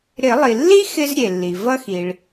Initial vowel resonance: oral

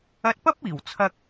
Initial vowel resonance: oral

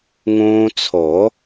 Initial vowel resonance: nasal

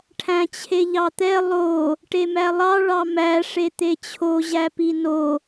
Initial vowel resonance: nasal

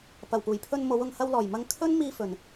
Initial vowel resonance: oral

